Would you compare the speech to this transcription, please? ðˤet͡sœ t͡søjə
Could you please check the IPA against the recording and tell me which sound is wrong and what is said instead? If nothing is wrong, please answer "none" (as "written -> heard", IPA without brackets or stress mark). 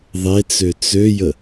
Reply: œ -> ø